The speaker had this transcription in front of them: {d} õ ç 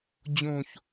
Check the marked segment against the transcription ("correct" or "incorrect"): incorrect